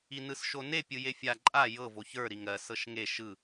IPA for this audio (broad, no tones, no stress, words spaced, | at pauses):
inɯsʃone pʲɯjefʲa ǃʼa jɤ voçə˞ ɾiŋɜ sɤʃŋe ʃɯ